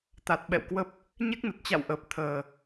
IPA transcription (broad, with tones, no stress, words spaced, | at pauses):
t̪a˨˩t̚ɓɛ̰˧˨wkwə˦˥p̚ | ɲe˦˥k̚nə˨˩t̚t͡ɕa̰˧˨wʔəː˨˩p̚ t̪ʰəː˨˩